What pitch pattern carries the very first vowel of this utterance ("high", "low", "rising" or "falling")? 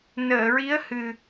low